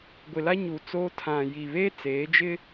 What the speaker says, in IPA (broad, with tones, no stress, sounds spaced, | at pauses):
ɡʷ ɪ˨ l a˦ ɲ u˨ t͡s oː˦ tʰ ã˨ j i˨ β e˦ t͡s eː˨˦ d͡ʒ ɪ˦